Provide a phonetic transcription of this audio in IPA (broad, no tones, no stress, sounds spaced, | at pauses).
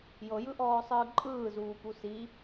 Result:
j ɤ j ɯ ʔ ɔː sˤ ɯː ǃʼ ɯː z uː p u s i